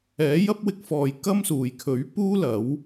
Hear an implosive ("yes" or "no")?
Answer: no